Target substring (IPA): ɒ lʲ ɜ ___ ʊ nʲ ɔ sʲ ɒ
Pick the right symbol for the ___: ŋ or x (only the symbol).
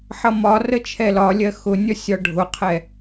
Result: x